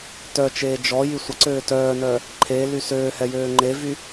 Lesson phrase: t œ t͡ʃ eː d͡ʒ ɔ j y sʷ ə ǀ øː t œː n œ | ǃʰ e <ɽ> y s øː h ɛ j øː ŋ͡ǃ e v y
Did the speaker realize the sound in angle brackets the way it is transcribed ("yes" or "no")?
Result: no